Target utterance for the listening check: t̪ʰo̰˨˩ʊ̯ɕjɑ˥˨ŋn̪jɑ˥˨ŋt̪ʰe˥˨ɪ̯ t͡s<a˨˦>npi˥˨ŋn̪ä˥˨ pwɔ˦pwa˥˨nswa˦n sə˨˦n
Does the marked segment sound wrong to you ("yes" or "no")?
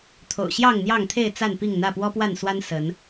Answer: yes